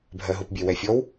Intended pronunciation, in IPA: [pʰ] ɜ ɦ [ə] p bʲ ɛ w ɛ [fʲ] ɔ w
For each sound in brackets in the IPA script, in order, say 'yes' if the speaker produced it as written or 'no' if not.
no, no, yes

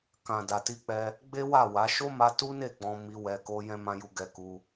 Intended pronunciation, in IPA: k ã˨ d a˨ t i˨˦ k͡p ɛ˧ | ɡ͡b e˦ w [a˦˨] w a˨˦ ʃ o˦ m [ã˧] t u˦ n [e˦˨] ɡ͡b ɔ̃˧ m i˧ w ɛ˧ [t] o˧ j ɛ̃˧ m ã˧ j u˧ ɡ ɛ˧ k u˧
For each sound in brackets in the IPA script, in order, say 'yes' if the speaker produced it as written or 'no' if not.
yes, no, yes, no

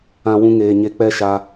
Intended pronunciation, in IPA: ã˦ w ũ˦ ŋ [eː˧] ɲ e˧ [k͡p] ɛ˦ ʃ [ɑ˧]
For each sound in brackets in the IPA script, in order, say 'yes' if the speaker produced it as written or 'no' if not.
yes, yes, no

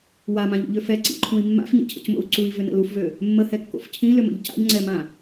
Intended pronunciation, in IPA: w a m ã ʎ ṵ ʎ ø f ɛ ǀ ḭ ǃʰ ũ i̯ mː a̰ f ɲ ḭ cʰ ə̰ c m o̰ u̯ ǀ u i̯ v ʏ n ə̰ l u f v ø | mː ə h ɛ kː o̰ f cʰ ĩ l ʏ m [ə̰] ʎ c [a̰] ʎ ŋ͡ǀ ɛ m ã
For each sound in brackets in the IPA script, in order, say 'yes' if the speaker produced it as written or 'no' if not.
yes, yes

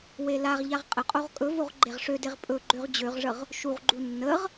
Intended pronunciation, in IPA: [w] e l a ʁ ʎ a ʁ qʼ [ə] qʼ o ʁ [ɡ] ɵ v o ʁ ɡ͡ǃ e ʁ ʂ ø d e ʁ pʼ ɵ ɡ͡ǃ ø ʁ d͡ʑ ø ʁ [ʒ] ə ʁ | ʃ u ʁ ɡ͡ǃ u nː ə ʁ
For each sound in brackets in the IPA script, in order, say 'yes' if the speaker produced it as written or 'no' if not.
yes, yes, no, no

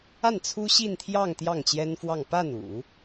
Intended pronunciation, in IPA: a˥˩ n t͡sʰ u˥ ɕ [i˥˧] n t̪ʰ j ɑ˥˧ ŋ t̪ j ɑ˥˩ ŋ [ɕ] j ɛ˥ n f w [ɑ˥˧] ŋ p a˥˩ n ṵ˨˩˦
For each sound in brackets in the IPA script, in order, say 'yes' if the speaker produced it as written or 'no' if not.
yes, no, yes

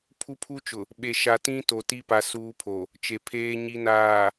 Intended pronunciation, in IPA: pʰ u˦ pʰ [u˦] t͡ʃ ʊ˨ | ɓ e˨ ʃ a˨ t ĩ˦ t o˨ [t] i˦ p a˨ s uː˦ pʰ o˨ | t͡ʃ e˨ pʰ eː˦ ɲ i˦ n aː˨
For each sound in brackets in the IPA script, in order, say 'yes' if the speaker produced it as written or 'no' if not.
yes, yes

